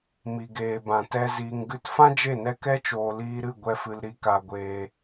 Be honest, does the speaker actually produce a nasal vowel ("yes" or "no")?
yes